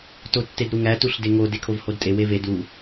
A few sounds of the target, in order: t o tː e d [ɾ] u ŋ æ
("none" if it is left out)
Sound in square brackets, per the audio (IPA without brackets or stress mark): ɾ